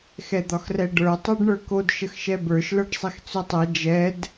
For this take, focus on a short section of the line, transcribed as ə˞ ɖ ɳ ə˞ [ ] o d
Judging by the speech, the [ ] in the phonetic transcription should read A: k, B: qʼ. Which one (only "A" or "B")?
A